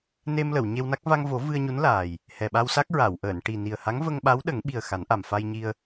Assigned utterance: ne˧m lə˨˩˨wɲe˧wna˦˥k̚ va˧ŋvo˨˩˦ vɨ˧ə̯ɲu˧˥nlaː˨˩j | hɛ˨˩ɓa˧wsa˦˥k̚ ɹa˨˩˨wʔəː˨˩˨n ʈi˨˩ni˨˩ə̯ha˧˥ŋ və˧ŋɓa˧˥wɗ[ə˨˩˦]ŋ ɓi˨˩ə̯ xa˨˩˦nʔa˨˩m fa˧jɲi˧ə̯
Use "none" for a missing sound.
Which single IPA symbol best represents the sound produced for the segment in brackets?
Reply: ə˨˩˦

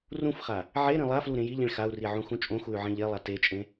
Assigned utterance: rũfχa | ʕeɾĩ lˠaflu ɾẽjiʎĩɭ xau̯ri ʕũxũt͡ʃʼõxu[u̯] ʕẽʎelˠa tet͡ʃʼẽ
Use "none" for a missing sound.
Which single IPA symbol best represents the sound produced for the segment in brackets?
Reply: y̯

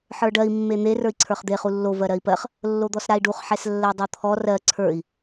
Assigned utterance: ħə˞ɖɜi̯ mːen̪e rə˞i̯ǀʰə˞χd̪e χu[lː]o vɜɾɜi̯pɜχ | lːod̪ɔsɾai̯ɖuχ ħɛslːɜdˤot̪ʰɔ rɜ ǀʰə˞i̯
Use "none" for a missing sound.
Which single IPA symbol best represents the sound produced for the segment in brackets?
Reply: lː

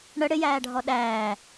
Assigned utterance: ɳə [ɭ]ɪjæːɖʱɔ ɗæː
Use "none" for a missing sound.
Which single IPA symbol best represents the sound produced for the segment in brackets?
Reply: ɽ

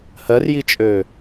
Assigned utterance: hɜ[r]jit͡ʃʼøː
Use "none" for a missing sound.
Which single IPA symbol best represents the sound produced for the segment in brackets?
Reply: r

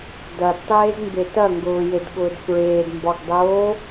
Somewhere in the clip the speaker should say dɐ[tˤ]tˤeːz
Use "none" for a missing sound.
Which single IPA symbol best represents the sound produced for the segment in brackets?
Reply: d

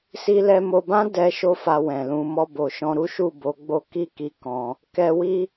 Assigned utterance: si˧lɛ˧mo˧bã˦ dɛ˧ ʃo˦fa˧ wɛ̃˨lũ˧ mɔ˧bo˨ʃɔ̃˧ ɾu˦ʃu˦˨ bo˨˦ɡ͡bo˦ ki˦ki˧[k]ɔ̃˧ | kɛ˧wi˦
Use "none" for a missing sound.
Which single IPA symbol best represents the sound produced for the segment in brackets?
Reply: k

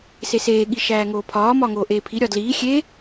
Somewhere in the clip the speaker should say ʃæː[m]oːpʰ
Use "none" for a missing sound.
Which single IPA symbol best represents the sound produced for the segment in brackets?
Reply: ŋ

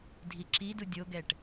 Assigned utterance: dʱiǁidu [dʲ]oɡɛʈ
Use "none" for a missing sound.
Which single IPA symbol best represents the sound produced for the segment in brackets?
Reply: dʲ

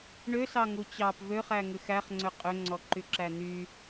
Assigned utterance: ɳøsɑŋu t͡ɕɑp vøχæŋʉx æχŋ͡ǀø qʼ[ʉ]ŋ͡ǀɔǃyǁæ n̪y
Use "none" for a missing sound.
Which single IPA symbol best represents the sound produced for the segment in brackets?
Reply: ø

